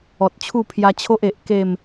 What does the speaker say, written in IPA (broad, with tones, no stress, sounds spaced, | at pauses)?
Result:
ɔ˨ t̚ t͡ɕʰ u˥˧ pʰ j a˧ t͡ɕʰ o˦ ʔ e˨ ʔ k e˥˧ m